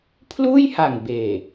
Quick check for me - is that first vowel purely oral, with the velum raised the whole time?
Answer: yes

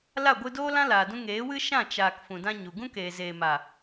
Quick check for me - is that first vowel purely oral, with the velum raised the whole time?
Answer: yes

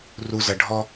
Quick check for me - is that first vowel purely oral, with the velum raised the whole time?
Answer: yes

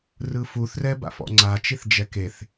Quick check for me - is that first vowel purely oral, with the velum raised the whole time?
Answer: yes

